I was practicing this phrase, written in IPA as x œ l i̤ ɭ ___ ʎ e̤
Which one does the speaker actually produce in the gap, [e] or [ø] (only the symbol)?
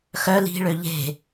ø